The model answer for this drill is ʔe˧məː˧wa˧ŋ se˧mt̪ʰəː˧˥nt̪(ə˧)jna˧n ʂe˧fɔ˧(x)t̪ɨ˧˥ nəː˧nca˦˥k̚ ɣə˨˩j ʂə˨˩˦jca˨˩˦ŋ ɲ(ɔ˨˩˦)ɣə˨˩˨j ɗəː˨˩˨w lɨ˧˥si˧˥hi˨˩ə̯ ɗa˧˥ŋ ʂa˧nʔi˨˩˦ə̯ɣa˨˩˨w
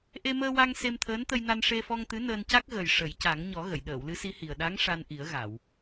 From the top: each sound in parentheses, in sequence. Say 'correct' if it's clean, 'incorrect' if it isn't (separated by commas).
correct, incorrect, correct